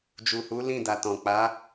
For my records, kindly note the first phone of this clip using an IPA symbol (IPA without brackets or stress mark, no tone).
d͡ʒ